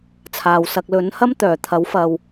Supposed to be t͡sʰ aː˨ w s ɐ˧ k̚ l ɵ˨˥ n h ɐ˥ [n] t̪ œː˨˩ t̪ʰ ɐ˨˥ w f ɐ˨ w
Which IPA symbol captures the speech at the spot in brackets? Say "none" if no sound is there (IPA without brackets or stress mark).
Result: m